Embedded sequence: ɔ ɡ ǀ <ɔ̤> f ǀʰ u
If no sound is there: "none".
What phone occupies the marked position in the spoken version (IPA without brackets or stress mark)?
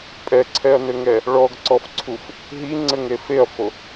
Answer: ɔ